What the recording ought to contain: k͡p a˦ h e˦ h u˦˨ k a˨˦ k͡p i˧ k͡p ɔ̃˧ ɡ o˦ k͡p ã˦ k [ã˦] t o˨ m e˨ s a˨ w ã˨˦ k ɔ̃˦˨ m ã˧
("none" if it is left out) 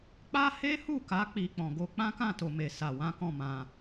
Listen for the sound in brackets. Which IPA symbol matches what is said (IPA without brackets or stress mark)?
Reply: ã˦˨